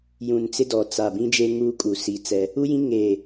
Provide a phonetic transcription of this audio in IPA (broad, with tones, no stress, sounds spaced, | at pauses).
j ũ˨ n t͡s ɪ˦ d ɔ˨ t͡s a˨ b ĩ˦ d͡ʒ e˦ ŋ uː˦ kʼ u˨ s i˦ t͡s ɛ˦ | u˦ j ĩ˦ ŋ e˦˨